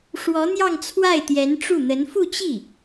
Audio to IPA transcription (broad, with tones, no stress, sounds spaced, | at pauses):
ʂ w ɔ˧˥ n̪ j ɑ˥˧ ŋ t͡sʰ w a˥˩ ɪ̯ t̪ j ɛ˧˥ n ʈ͡ʂ u˥˩ n̪ ə˧˥ n f u˥˧ t͡ɕ i˥˩